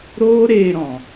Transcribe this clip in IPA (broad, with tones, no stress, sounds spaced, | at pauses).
ɾ oː˦ ɾ eː˧ ɾ ɔ̃˨